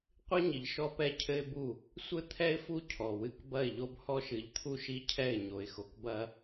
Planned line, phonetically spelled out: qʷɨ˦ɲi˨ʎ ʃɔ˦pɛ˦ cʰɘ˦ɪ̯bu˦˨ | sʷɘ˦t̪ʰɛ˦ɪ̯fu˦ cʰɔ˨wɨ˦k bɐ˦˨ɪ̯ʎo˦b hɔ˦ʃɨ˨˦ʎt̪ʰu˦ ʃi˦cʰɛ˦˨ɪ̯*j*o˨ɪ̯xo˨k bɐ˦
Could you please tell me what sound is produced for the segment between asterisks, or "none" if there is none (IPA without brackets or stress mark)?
ɲ